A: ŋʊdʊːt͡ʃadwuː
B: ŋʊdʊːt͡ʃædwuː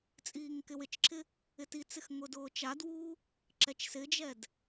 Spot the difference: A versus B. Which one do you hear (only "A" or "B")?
A